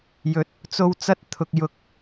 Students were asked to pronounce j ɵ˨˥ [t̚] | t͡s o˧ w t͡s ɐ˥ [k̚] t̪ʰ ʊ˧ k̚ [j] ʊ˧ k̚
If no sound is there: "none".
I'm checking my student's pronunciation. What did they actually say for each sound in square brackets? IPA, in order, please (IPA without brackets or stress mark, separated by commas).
t̚, t̚, j